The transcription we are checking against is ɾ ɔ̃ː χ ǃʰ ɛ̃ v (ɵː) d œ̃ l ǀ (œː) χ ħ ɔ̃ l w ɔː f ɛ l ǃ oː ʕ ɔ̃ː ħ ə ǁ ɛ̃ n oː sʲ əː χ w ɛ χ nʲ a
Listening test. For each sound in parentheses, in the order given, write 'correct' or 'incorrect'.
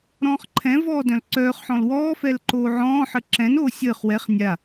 incorrect: ɔː, correct

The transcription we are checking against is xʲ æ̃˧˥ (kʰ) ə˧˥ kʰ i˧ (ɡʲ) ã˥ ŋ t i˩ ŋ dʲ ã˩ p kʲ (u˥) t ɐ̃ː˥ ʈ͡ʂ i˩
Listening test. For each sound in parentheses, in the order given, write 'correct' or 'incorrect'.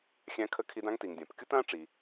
correct, incorrect: d, correct

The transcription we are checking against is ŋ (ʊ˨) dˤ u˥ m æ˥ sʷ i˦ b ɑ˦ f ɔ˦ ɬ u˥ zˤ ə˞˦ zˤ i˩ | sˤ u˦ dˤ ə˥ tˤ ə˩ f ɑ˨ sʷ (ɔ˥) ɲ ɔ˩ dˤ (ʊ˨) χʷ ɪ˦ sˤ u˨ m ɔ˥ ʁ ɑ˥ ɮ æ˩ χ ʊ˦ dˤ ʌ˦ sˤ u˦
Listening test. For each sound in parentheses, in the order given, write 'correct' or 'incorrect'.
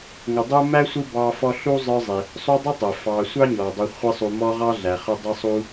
correct, incorrect: ɑ˥, incorrect: u˨

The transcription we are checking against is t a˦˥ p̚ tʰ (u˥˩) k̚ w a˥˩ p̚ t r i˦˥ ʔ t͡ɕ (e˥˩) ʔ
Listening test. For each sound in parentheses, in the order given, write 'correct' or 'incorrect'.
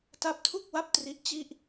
correct, incorrect: i˥˩

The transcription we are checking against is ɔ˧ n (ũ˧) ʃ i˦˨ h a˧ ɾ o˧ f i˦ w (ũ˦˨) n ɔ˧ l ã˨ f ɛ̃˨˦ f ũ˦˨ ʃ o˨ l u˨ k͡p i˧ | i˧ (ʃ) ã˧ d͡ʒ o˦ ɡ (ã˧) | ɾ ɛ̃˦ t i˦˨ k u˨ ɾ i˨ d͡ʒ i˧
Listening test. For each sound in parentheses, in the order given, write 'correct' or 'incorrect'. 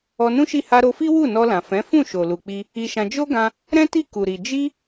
incorrect: ũ˦, incorrect: u˦˨, correct, correct

